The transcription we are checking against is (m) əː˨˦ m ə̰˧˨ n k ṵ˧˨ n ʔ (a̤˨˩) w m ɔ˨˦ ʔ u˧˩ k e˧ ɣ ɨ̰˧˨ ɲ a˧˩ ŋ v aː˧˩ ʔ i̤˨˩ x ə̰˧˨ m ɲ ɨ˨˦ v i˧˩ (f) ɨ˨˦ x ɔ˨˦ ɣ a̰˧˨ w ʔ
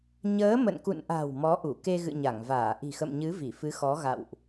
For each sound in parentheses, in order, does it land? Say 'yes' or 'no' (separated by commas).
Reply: no, yes, yes